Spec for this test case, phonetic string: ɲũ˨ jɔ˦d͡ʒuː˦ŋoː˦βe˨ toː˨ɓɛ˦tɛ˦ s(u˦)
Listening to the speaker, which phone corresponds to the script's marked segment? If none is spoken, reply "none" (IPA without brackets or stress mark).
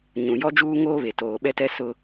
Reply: ʊ˦